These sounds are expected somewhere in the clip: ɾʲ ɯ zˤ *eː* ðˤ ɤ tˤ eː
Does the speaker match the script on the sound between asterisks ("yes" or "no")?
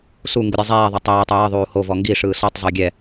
yes